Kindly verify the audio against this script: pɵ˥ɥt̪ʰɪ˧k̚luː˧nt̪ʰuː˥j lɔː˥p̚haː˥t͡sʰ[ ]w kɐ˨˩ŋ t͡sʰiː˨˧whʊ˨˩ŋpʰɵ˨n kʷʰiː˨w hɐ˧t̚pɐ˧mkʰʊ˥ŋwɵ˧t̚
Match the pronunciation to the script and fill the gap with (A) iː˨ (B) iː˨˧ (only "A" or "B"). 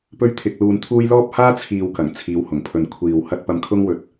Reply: A